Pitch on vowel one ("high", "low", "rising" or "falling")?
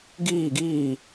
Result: falling